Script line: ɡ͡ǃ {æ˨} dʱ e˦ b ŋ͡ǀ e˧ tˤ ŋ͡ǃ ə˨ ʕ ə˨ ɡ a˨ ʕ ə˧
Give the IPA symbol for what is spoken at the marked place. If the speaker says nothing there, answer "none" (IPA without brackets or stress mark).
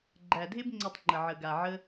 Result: æ˨